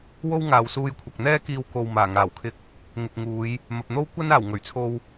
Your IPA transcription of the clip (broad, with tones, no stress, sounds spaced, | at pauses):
w o˥ w ŋ aː˨ w s uː˧ j kʷʰ ɐ˨ k̚ n̪ ɛː˥ k iː˧ w k o˨ w m aː˨˩ ŋ aː˨˩ w kʰ ɪ˧ k̚ | ŋ ɪ˨ k̚ ŋ uː˨˧ j | m ɐ˨ p̚ n̪ o˥ w kʷ ɐ˥ n aː˨˩ w ŋ ɵ˨˩ ɥ t͡sʰ o˧ w